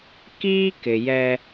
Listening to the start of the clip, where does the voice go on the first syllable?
high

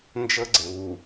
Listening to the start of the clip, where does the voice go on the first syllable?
high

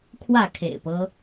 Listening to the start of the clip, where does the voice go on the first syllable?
falling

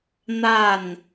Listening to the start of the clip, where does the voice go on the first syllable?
falling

